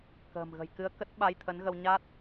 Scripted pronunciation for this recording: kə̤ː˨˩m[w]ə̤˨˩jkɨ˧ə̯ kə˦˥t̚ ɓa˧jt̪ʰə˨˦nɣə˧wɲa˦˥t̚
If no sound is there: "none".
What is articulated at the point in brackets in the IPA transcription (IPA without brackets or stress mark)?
ɣ